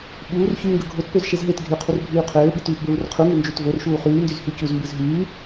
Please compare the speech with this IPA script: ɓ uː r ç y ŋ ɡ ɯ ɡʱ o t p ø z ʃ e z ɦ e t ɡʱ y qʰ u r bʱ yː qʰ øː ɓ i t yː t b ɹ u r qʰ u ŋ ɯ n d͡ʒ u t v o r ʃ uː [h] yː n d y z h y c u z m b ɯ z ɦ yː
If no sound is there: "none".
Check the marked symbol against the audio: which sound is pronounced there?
χ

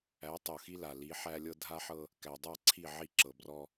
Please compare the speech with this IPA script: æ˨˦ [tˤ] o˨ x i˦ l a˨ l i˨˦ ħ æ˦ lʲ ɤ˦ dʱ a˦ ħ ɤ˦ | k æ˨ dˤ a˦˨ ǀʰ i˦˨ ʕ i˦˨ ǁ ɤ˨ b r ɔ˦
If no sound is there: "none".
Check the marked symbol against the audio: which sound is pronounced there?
tˤ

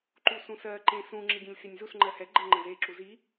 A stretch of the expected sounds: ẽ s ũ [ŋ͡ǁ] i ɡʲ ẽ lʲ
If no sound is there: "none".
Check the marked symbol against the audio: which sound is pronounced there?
ŋ͡ǁ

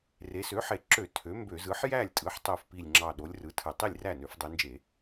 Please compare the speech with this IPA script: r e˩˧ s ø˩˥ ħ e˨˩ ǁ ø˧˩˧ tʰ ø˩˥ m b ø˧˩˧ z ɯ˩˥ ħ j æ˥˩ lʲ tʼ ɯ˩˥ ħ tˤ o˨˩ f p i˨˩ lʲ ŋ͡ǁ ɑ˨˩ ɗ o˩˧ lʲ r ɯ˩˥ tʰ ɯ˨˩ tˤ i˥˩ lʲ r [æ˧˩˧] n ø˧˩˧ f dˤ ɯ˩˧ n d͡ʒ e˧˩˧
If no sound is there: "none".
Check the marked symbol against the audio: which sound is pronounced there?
æ˥˩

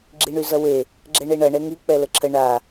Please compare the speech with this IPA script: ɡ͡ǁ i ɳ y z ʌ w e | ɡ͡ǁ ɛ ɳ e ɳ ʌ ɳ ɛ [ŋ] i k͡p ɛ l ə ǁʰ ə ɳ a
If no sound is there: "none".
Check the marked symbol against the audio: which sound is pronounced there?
ŋ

